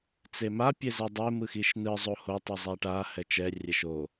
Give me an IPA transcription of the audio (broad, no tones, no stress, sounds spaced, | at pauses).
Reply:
t͡s e m a pʲ e z ɛ dˤ e m ɯ x i ʃ n ɯ zˤ o h o tˤ ɯ zˤ a ʈ a h ɛ t͡ʃ ɛ rʲ ɛ ʃ o